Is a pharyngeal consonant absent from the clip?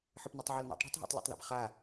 no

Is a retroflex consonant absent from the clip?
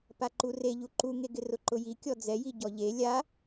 yes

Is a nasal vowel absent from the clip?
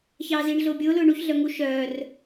yes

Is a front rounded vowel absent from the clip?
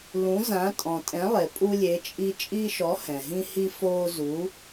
yes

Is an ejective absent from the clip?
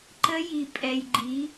no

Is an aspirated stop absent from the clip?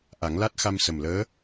yes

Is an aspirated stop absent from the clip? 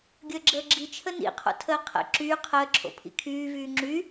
no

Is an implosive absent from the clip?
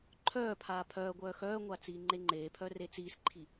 yes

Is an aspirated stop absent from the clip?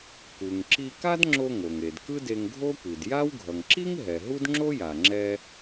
yes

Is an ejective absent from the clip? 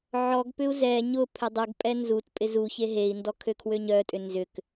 no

